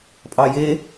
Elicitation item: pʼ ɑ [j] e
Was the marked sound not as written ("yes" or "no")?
no